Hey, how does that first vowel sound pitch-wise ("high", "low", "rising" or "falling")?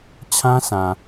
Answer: high